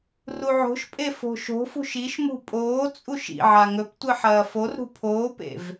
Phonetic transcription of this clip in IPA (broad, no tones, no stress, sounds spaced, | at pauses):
r u ʕ o̤ ʃ pʼ e f o̤ ʃ o̤ f ṳ ʃ i ʃ m ṳ pʼ oː t͡sʼ u ʃ ḭ ʕ a ŋ ɵ p tʷ ɨ ħ ɐː f o r ɾ ṳ pʰ oː p ḛ v